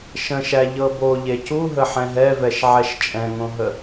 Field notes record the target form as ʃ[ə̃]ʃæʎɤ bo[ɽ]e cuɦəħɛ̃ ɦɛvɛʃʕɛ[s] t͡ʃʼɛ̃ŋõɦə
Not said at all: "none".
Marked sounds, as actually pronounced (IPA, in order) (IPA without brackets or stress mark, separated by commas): ə̃, ʎ, ʃ